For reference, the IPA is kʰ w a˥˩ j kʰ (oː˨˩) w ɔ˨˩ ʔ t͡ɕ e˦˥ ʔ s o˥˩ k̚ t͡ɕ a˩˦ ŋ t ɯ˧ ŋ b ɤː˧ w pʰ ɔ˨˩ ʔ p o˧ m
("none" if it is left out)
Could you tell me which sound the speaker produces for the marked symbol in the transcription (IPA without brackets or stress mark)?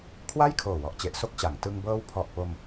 oː˨˩